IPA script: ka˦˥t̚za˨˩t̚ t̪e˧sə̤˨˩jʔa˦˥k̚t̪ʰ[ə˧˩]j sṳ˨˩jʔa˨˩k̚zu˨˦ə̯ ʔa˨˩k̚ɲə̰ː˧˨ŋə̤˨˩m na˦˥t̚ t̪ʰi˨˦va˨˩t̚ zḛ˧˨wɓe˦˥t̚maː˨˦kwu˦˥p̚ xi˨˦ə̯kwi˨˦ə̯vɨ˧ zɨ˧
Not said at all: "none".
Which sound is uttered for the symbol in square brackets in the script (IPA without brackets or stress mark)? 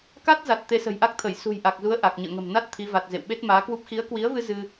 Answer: ə˧˩